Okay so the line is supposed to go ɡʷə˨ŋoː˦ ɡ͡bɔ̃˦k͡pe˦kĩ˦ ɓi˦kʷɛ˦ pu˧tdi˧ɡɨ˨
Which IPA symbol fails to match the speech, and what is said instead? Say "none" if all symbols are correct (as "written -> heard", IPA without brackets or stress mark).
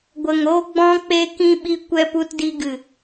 none